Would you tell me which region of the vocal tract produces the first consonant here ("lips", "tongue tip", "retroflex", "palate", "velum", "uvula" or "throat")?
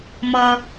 lips